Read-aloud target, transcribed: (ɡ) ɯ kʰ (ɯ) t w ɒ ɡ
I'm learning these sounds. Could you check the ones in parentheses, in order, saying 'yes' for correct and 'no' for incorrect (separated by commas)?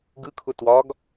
yes, no